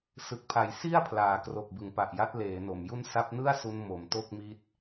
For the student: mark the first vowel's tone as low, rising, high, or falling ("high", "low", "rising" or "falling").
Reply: low